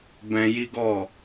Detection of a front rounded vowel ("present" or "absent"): absent